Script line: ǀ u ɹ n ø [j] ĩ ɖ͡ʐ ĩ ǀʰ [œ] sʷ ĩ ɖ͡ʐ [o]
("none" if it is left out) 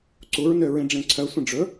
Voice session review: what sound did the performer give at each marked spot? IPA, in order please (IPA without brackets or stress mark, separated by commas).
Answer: ɹ, œ, ɵ